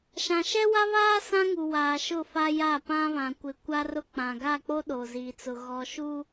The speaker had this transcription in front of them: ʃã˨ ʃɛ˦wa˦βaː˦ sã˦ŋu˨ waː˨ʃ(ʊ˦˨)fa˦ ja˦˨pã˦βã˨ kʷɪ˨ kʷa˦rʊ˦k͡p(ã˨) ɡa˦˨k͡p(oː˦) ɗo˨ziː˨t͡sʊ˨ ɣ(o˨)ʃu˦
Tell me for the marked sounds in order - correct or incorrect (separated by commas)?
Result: correct, correct, incorrect, incorrect